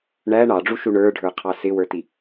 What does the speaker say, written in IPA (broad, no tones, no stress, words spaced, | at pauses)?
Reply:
ɳæ ɳɑɖ͡ʐuʃu ɳə˞ɖʱə˞qʰɑ sɪwə˞ti